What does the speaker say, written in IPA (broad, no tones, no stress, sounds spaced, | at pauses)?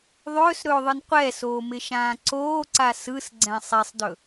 ðˤ ɵː s ɾ ɵː ðˤ ɯ n qʷ ɛ s oː m ɪ ʃ ãː ǀ oː ǀ a s ɯ s ɡ͡ǀ ɛ̃ sˤ e sˤ d ɵ